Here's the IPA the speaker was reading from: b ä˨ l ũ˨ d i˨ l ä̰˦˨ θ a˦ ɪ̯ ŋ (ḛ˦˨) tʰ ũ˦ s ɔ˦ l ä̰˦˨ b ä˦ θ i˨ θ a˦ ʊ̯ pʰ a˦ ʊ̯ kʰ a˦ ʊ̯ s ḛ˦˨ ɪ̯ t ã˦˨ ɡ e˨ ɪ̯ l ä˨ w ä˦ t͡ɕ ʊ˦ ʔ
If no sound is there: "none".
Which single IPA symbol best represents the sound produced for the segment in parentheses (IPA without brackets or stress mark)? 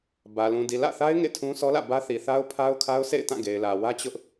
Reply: ḛ˦˨